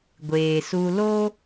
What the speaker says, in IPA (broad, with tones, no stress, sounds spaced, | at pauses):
ɡʷ eː˨ s u˧ l o˦